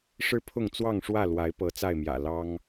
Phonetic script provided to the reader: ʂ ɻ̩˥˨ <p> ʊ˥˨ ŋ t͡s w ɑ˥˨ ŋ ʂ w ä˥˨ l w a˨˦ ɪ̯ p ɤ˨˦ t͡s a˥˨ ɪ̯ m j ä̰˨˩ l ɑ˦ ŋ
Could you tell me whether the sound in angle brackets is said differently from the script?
yes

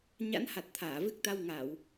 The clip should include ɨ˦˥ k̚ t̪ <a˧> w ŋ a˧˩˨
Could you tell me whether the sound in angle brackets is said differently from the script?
no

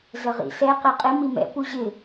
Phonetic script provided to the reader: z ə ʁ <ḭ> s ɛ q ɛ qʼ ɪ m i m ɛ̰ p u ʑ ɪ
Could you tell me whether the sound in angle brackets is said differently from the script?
no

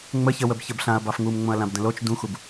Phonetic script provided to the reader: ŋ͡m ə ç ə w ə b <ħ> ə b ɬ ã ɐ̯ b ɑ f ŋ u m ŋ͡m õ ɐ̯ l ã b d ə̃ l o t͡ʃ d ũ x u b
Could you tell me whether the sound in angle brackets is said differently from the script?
yes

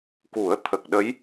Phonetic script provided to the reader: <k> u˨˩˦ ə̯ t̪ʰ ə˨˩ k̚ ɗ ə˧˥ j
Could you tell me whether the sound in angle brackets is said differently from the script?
no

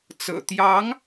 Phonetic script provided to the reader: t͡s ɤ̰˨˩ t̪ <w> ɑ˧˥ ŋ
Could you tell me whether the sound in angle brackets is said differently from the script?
yes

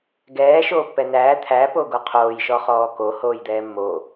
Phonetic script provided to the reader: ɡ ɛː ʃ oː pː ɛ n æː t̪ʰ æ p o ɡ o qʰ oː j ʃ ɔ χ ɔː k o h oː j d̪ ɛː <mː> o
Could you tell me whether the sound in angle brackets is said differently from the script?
no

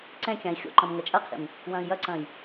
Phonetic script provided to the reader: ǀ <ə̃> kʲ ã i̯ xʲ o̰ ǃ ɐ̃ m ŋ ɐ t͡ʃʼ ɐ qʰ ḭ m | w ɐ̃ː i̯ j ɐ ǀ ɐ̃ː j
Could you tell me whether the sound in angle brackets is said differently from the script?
yes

